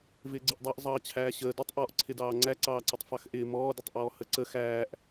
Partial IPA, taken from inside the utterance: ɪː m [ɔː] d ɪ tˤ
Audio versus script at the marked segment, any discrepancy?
no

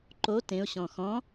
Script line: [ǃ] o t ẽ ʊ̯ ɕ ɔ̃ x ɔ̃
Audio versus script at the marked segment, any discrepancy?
no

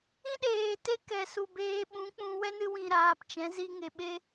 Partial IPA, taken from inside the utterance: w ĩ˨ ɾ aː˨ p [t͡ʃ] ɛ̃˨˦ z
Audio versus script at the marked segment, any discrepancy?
no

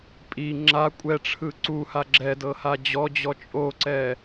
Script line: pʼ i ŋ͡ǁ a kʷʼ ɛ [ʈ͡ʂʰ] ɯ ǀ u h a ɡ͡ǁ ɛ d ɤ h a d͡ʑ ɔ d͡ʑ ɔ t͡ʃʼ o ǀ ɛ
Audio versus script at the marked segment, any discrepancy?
no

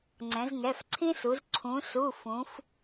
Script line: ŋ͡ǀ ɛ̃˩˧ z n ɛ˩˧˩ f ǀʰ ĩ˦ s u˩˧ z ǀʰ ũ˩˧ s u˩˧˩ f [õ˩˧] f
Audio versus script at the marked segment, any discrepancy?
yes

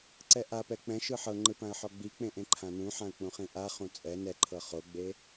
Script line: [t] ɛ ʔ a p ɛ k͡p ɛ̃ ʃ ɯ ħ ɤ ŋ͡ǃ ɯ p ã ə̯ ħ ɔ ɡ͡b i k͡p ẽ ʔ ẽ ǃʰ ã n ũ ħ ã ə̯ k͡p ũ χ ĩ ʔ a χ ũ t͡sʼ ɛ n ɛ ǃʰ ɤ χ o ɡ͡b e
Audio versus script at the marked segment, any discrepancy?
yes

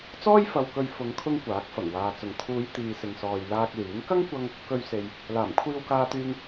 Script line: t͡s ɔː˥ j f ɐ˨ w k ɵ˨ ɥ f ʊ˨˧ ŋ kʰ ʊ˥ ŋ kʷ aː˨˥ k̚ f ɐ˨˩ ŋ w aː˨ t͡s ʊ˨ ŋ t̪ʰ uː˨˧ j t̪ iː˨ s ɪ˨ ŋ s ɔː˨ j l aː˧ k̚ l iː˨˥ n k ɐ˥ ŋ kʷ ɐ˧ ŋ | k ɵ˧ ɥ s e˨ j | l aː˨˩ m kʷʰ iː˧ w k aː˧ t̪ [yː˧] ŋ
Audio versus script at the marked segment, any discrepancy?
no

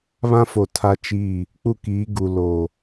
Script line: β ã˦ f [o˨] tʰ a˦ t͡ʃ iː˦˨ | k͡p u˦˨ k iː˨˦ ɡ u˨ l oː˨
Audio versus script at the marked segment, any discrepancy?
no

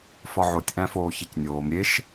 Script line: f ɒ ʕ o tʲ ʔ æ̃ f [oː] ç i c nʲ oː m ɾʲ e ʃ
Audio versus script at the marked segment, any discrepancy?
no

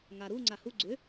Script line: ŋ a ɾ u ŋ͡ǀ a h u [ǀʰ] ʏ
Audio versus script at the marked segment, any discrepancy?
yes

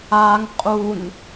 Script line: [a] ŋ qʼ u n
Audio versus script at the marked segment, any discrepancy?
no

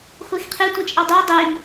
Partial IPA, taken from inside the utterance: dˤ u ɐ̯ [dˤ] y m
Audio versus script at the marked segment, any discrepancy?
no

